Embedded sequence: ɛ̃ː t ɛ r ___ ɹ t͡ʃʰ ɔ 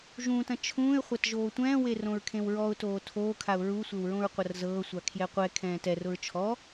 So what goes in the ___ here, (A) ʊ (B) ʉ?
A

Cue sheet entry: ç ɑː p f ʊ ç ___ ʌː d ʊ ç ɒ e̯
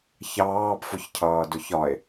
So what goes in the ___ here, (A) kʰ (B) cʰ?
B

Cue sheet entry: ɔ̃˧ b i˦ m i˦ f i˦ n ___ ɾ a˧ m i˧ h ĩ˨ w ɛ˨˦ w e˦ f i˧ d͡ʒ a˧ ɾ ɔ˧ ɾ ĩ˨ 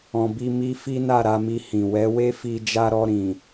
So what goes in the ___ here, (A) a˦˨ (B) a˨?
A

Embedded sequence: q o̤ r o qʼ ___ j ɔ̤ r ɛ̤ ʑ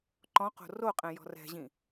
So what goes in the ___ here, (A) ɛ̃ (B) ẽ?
A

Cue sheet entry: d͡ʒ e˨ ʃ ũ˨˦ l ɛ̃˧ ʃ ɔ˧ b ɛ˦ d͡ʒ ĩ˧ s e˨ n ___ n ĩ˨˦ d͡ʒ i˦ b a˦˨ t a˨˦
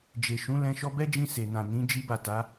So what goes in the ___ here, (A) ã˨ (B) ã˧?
A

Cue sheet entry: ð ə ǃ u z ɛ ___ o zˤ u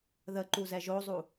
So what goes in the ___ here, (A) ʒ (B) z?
A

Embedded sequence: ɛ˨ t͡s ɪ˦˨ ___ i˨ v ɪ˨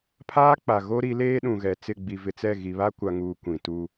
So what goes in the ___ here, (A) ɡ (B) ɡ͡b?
B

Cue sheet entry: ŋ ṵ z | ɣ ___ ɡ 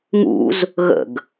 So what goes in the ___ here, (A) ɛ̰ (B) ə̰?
B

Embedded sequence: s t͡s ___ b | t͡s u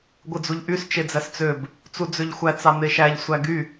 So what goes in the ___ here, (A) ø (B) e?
A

